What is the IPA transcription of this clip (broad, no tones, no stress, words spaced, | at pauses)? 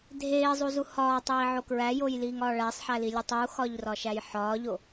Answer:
dʱeːzˤuzu hɒːtˤiːʕo kɹæjojliːŋɒː ɭæsˤħælilʲotˤ uxɒʎrɒʃæj ħɒːʎo